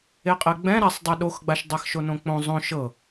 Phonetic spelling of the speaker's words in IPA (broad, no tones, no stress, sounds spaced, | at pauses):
e qʼ ɛ ɡ͡b ɛ̃ ɾ a sˤ dˤ ɛ ɗ o x ɡ͡b a ʃ dˤ a x ʃ o n õ k͡p õ zˤ õ ʃ ɤ